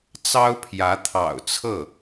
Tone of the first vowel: high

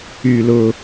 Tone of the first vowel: low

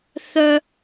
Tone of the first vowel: low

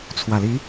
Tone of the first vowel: low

